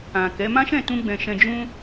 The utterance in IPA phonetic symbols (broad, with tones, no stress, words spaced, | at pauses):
ã˨kɛ˨˦ mã˦ʃɛ̃˦˨tũ˧ɡ͡bɛ̃˨ ʃɛ̃˧d͡ʒũ˦